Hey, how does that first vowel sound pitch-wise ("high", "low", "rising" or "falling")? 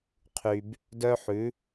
low